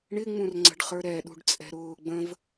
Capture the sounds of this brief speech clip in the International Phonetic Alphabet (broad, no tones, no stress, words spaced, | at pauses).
ɳɪŋ͡mũrŋ͡ǀə̤ɖχə˞ ɾɛɗṳɖ t͡sʼɛ̤ɾʊː ɡ͡bə̃v